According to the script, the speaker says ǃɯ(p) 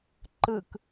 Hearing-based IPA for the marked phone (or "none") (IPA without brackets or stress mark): k